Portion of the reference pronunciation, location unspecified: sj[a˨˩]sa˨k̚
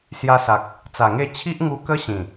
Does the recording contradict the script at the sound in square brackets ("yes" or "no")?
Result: yes